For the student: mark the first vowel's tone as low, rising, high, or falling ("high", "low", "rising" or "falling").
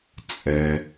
low